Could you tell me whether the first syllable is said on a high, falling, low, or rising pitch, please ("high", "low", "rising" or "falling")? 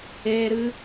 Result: high